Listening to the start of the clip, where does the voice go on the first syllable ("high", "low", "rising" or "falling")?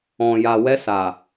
low